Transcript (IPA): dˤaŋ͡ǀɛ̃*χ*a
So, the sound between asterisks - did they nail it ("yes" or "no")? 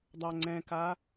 no